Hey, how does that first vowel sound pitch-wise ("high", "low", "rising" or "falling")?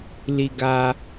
low